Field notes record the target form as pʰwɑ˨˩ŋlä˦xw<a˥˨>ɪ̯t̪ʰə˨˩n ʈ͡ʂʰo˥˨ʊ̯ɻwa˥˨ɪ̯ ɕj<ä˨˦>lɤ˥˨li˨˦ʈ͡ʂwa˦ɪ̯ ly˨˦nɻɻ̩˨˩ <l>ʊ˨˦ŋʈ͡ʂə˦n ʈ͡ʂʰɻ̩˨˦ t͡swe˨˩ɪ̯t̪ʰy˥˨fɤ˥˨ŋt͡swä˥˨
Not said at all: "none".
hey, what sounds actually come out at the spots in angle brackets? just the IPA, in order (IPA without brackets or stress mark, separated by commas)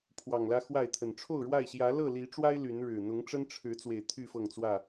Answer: a˥˨, ä˨˦, n̪